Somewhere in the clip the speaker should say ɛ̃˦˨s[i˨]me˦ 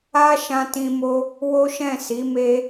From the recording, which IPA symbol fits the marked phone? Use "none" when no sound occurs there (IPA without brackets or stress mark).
i˨˦